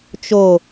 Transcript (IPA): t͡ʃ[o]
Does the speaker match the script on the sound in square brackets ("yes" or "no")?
yes